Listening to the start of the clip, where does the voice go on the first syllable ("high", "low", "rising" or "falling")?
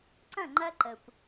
falling